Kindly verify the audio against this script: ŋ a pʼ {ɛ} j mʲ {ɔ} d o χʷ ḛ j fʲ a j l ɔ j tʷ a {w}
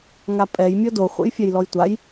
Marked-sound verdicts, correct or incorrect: correct, correct, incorrect

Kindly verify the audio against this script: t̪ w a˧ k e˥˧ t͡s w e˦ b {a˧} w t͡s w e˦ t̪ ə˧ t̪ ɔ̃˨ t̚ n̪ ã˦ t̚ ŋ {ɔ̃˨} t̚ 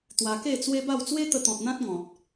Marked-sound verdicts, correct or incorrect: incorrect, correct

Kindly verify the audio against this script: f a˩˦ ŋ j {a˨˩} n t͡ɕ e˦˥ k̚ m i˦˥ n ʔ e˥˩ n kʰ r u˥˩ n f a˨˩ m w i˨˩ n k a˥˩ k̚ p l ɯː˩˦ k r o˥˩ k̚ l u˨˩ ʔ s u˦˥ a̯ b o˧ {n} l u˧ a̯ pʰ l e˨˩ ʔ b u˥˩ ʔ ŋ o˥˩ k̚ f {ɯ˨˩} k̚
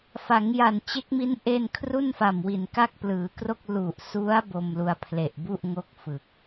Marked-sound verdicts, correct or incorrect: correct, incorrect, correct

